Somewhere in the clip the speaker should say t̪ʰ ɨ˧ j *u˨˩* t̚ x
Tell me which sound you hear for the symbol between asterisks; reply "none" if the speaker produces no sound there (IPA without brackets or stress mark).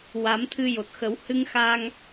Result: o˨˩